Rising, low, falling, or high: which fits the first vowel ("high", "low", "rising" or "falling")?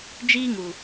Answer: high